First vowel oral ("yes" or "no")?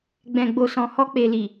no